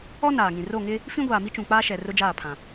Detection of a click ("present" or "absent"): absent